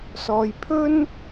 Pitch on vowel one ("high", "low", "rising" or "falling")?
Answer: low